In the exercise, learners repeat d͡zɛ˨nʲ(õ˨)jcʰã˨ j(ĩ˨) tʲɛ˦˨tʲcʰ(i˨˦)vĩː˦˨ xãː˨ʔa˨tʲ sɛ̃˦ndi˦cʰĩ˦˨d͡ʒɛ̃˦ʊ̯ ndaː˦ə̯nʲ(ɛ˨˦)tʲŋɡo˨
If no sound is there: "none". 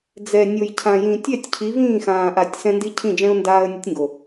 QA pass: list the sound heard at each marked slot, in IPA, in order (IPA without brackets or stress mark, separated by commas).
o˨, ĩ˨, i˨˦, ɛ˦